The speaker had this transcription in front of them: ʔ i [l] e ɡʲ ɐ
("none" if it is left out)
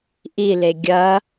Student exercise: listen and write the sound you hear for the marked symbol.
l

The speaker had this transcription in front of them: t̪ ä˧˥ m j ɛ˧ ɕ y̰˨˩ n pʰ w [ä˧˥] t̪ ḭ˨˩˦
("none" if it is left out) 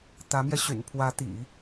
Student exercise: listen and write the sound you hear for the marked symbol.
ä˧˥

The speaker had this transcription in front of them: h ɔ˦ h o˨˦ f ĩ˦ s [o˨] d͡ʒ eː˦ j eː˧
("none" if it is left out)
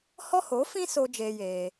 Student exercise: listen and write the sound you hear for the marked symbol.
o˧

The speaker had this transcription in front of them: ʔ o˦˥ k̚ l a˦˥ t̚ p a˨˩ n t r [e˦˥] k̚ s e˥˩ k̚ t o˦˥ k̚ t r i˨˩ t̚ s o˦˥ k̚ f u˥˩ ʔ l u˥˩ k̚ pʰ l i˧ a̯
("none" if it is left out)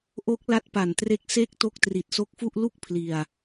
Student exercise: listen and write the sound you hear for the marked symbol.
e˦˥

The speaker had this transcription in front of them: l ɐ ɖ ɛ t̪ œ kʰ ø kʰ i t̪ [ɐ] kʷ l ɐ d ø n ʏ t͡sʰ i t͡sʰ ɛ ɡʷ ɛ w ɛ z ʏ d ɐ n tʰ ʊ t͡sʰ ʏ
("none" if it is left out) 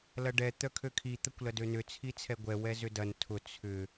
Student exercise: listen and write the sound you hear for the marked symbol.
ɐ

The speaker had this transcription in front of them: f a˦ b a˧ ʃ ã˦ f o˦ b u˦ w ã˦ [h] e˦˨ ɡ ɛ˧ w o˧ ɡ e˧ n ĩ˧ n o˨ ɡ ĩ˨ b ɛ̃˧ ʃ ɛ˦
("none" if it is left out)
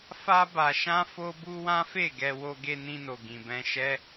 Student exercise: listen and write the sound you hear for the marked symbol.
f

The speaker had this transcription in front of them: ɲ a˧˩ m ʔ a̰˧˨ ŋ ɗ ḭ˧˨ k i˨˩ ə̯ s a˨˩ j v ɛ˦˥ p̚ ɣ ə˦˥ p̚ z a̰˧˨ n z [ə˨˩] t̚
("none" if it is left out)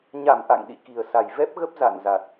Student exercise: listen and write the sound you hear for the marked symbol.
a˨˩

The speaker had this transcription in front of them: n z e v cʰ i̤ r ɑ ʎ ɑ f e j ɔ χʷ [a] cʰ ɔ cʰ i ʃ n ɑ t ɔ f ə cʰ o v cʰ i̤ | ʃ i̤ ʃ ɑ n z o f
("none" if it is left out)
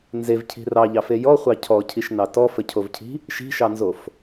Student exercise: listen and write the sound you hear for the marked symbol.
ɑ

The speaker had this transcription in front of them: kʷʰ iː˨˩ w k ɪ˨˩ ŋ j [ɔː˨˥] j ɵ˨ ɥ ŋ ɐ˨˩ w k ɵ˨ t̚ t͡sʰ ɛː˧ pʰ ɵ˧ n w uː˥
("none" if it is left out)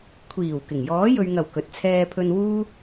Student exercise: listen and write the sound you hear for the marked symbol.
ɔː˨˥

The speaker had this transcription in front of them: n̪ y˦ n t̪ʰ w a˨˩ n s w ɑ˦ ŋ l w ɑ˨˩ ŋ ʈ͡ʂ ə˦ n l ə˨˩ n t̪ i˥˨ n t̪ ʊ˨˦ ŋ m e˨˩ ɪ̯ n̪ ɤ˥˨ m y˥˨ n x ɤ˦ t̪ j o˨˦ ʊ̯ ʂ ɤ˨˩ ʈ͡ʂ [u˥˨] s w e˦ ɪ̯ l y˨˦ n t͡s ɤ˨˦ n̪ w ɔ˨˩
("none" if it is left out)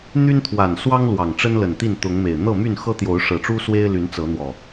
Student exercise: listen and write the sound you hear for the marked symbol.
u˦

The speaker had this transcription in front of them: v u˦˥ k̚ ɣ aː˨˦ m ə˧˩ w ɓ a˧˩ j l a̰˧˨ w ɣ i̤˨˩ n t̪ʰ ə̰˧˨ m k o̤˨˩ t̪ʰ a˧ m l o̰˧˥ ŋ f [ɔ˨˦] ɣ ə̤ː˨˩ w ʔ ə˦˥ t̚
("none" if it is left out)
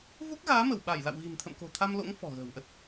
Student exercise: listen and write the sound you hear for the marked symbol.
ɔ̤˨˩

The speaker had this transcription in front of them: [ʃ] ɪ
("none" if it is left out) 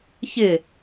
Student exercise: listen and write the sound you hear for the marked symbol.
ç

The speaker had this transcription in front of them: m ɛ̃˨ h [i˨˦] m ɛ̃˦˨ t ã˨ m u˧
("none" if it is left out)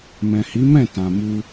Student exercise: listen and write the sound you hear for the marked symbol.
i˨˦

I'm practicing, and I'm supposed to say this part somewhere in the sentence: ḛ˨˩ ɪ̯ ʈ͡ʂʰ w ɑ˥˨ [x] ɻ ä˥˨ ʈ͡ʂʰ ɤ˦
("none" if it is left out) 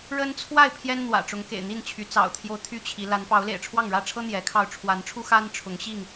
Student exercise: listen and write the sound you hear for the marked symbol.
ŋ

